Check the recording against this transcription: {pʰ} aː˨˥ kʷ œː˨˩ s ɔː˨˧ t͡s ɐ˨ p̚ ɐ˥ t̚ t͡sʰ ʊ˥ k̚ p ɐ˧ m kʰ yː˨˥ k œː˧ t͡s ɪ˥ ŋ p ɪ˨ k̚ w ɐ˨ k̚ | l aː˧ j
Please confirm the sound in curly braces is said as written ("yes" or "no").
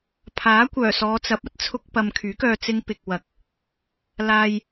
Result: yes